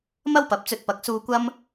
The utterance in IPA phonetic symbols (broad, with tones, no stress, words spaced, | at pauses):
mɐ˥wpɐ˨˥p̚t͡sɵ˧t̚ pɐ˨˥k̚suː˧ kʷɐ˥m